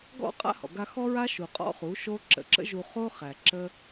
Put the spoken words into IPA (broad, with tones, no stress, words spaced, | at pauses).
ɡɔ̰˦ qʼa̰˦hɔ̰˨ɡa˧ xɔ˦ɹa˦ ʃu˨qʼɔ̰˦χu˨˦ ʃo˦ ǁə̰˧ǁə̰˦ʒu˧χo˦ χæ˨ǁə˦